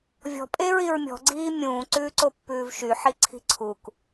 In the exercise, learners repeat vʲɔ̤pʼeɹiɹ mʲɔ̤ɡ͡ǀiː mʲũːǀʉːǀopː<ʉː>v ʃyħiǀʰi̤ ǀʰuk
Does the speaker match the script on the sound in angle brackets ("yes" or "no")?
yes